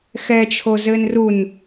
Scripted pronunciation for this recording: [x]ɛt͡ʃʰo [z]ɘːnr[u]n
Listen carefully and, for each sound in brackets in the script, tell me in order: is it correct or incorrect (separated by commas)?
correct, correct, correct